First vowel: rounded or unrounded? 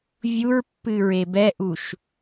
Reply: rounded